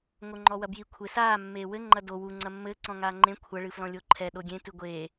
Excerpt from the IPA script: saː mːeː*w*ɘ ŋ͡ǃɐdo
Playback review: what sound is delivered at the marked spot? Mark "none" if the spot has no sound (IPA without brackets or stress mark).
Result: w